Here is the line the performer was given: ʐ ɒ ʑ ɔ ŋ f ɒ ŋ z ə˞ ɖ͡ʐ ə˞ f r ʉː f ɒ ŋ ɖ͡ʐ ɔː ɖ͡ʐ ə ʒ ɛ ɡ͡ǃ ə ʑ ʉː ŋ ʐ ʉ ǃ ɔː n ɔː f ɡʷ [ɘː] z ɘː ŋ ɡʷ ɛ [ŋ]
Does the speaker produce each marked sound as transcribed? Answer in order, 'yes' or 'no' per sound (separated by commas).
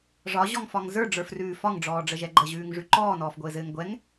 yes, yes